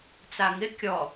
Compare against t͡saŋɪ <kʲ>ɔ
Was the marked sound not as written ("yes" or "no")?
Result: no